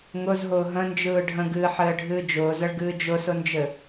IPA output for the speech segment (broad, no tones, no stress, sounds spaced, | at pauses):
ŋ ʊ z ɦ ʊː ɦ ə̃ n d͡ʒ ɯː ɖʱ ə̃ ɡ ɨː ħ ɘː ɖʱ ɨː d͡ʒ ʊː z ə ɭ ɡ ɨː d͡ʒ ʊ s ʊ n d͡ʒ ɘ